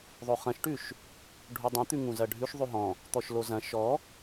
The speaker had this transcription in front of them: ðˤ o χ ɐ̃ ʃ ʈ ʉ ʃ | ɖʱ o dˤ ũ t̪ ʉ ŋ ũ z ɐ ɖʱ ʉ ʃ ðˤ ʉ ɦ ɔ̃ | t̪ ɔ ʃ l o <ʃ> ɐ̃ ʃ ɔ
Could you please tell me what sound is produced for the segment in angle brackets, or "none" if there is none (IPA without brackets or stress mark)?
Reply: z